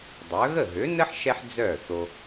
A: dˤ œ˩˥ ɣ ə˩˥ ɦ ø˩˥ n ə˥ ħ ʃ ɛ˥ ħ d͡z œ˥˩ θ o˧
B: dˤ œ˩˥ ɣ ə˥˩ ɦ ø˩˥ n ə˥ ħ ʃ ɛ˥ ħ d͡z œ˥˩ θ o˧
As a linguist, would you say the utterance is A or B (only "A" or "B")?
B